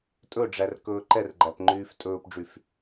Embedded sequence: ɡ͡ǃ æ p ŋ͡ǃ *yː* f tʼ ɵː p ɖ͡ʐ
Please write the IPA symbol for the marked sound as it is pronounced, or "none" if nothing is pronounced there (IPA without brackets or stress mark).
yː